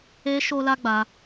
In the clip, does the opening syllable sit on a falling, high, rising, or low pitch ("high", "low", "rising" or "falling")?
high